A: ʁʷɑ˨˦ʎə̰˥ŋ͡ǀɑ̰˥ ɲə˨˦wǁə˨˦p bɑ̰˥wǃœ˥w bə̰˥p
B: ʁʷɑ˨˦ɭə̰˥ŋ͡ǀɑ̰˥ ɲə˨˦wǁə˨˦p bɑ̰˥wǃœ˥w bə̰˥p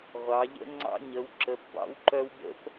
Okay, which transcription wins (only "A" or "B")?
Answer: A